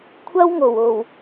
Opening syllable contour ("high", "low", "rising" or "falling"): high